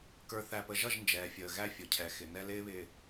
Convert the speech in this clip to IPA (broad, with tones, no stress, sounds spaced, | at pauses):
k ə˞˨ θ æ˨ p ə˨ ʒ ʌ˦˨ ʒ n d͡ʒ ɛː˨ fʲ əː˨ ɣ æ˦ fʲ ʊ˨ cʰ ɛ˨ x ɪ˨ n ɛ˦ l ɪː˦ β ɪː˨